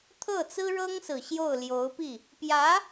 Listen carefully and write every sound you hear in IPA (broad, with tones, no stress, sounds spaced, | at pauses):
t̪ʰ ɤ˥˩ t͡s ɹ̩˥ ɻ ɤ˥ ŋ s ɹ̩˨˩ ɕ j o˥˩ ʊ̯ l j o˧˥ ʊ̯ p i˥˩ | p j ä˧˥